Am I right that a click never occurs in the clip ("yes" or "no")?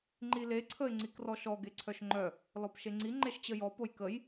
no